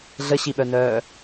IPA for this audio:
ɮ ə ɕ i ɓ œ n œː

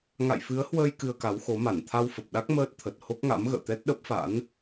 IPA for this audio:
ŋ a̰˧˨ j f ɨ˨˦ ə̯ h w əː˧ j k ɨ˧ ə̯ k a˨˦ w x o˨˦ m a˧˩ n t̪ʰ a˧ w f ə˨˩ p̚ ɗ a˦˥ k̚ m əː˦˥ t̚ t̪ʰ ə˨˩ t̚ h o˦˥ k̚ ŋ a̰˧˥ m ɣ ə̰ː˧˨ t̪ ɛ˦˥ t̚ ɗ ə˦˥ p̚ f a̰˧˥ n

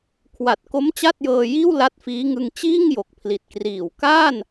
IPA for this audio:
kʰ w a˨˩ t̚ k o˦˥ m t͡ɕ a˥˩ t̚ j ɤː˧ j iː˥˩ w l a˦˥ t̚ f iː˦˥ ŋ ɯ˧ ŋ t͡ɕ iː˥˩ ŋ j o˨˩ k̚ pʰ l i˨˩ t̚ k r iː˨˩ w k aː˥˩ n

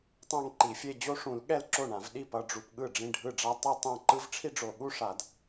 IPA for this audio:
tˤ ã˥˧ ŋ ǃ i˨˩˦ fʲ e˥˧ d͡ʑ o˥ ʂ ũ˨˩˦ l ɠ ɛ˥˩ l ǁ o˥˩ ɳ ã˨˩˦ v ɗ i˥˩ p ʌ˥˧ ɖ͡ʐ u˨ p ɠ ɯ˥˩ ɖ͡ʐ ĩ˥˩ ɖʱ ɯ˥˩ ɖ͡ʐ a˥ tˤ ɛ˥˧ tˤ ã˥˩ ǃ ɯ˥ v ʈ͡ʂʰ i˥ ɖ͡ʐ o˨˩˦ ɠ u˥˧ ʂ a˨˩˦ d

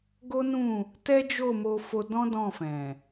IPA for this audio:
ɡ o˦ n ũ˦˨ | t ɛ˦ d͡ʒ o˦˨ m o˧ f o˧ d ɔ̃˦ d ɔ̃˦˨ f ɛ̃˨

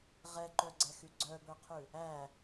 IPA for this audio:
ʁ ɛ ǃ œ ɡ͡ǀ ɛ x y ɡ͡ǀ œ b œ qʰ ʉ | æ

